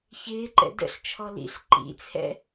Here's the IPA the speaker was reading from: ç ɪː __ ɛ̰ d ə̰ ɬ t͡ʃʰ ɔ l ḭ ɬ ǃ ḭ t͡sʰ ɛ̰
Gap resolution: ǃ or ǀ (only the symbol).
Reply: ǃ